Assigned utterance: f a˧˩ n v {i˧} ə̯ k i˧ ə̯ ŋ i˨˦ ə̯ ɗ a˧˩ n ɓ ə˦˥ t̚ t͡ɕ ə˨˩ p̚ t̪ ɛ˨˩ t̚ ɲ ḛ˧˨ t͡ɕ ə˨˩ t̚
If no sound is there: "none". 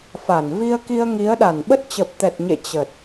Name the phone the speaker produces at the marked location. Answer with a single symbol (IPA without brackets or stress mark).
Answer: i˧